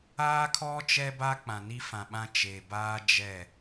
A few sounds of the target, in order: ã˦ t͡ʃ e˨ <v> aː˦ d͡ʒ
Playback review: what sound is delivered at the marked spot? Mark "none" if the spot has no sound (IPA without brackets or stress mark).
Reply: b